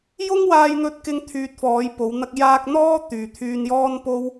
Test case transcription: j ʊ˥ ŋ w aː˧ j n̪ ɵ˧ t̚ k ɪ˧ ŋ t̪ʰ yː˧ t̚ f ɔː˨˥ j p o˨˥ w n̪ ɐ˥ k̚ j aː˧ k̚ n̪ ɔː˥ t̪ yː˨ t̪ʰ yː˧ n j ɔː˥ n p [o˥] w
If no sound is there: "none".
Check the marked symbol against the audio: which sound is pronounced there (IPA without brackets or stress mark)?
o˥